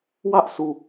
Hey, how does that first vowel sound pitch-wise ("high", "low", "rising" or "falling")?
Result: high